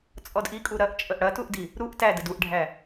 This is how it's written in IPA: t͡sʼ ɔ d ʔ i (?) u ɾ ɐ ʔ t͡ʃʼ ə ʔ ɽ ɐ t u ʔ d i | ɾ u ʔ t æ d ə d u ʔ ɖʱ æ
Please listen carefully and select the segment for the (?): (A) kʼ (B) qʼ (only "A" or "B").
A